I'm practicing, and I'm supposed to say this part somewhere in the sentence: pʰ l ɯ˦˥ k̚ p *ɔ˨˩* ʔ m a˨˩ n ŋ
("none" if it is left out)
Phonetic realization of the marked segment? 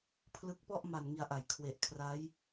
ɔ˥˩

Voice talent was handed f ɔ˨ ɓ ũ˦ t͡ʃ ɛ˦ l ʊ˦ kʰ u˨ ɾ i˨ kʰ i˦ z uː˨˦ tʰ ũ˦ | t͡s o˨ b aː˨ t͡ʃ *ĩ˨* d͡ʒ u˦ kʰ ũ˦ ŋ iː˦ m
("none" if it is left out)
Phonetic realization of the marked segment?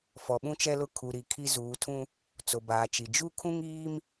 i˨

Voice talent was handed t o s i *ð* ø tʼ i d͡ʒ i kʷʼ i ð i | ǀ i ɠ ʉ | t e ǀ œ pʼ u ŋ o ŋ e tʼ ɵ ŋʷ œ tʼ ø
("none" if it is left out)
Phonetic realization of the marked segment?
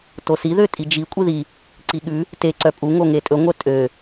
ð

